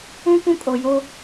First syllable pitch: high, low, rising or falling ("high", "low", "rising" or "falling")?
high